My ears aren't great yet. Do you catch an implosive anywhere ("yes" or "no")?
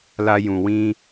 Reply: no